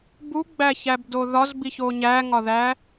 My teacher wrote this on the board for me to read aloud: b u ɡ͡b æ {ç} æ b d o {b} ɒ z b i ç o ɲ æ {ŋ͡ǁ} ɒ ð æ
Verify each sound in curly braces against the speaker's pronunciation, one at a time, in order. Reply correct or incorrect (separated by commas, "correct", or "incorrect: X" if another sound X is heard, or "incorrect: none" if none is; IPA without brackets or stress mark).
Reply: correct, incorrect: ð, incorrect: ŋ